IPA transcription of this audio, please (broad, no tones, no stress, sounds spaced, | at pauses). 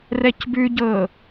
r ɛ c b ʉ ɟ ɤ